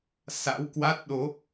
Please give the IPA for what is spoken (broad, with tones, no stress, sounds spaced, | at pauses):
s a̰˧˥ w k w a˦˥ t̚ ɗ o˨˦